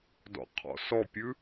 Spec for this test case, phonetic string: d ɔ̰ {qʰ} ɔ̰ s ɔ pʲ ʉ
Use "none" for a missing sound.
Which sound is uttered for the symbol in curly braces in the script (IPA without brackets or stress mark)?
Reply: qʰ